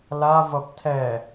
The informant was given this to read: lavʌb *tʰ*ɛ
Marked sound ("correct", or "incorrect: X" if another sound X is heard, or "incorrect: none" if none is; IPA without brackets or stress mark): correct